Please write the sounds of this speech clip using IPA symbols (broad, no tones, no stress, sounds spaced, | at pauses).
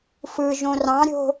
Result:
f ɯ ʒ õ r ɑ̃ ɾʲ o̤